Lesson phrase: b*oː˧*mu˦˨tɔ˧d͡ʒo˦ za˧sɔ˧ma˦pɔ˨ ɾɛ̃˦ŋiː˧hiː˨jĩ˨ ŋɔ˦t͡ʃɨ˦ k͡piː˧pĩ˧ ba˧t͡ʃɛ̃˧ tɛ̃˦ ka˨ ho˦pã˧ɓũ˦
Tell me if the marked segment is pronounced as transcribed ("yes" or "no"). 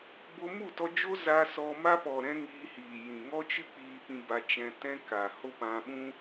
no